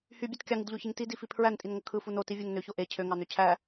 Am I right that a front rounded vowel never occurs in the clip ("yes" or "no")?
no